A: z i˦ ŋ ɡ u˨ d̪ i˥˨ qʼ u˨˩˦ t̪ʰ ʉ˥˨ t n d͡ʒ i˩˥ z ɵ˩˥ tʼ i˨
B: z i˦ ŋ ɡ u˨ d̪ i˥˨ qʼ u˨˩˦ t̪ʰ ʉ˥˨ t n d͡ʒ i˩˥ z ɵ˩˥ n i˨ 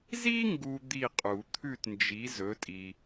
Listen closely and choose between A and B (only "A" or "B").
A